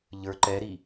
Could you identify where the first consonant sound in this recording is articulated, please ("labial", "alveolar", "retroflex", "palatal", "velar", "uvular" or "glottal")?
palatal